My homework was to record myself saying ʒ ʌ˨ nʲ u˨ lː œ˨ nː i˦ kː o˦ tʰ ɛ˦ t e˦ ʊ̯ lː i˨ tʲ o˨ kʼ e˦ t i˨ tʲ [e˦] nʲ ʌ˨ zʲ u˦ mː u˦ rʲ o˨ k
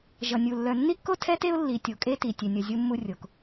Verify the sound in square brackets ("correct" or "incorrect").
incorrect